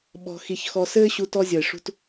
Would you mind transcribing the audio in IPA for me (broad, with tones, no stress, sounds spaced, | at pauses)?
ɓ ɔ̤˧ x i˧ ç x ɔ˧ s ɘː˥ ɕ u˧ t ɔ˧ zʲ ʌ˩ ɪ̯ ʂ ṳ˧ t